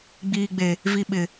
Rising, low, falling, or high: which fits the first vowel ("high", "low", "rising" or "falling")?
low